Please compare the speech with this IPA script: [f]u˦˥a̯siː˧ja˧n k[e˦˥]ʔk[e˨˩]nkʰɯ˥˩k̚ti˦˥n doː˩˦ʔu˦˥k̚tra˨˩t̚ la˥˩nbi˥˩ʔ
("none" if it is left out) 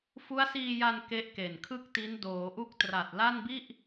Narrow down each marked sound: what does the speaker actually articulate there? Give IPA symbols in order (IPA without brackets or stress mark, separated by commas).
f, e˦˥, e˨˩